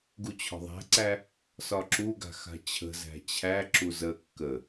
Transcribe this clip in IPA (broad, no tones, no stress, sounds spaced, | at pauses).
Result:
ɡ u t͡ɕʰ ɔ̤ ðˤ æ̤ ǀ æ | s ɒ ǁ u ɡ a̤ x a̤ t͡ɕʰ ə̤ z æ̤ t͡ɕʰ æ ǁ u z ə kː ə